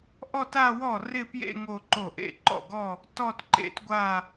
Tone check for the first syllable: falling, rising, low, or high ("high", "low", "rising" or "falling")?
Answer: falling